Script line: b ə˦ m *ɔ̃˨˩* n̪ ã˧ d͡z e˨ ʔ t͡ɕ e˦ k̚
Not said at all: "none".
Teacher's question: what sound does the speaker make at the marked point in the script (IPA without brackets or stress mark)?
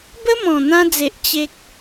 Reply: ɔ̃˨˩